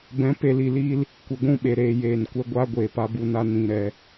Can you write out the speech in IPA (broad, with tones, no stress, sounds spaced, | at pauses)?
b ɛ̃˨˦ p e˨ l i˨ l iː˧ l | kʷ e˨ ɡʷ ũ˦˨ ɓ e˨ ɾ eː˨ j eː˨ n kʷ ɛ˧ ɡʷ aː˦ ɡʷ eː˨ p a˧ b u˧ n a˦ n ĩ˧ ɾ ɛ˧